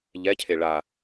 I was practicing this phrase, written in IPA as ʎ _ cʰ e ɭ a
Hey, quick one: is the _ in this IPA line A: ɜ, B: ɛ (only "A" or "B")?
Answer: B